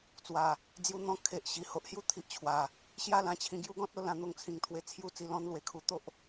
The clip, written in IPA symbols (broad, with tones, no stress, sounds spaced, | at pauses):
t͡s w a˨˩ | d͡z j u˧ n̪ ɔ̃˧ kʰ e˨ ʔ ɕ i˨˩ h o˨ ʔ h j u˥˧ t̪ʰ i˨ ʔ t͡ɕʰ w a˨˩ | ɕ j a˥˧ l ã˥˧ t͡ɕʰ ĩ˧ ɡ j u˦ ɡ ɔ̃˦ t̚ o˧ l ã˧ n̪ o˧ ŋ t͡sʰ ĩ˨˩ ŋ t̪ʰ w e˧ t͡sʰ j u˥˧ t͡s i˥˧ l ɔ̃˥˧ n l w e˨˩ kʰ u˧ t̪ o˦ ʔ